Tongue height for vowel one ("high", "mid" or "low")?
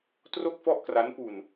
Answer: mid